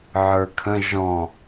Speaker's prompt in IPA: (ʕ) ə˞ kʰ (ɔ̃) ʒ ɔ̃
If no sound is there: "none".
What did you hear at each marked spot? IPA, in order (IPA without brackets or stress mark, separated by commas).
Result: ʕ, ə̃